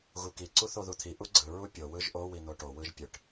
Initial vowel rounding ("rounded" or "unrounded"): rounded